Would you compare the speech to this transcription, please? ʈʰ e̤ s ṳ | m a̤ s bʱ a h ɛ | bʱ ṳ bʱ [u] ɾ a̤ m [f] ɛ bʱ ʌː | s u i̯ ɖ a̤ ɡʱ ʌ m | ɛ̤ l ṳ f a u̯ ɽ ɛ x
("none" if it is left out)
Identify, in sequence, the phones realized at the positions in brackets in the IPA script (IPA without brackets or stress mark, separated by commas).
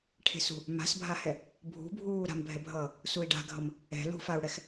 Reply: uː, bʱ